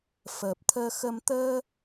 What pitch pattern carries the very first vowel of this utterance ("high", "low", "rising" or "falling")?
low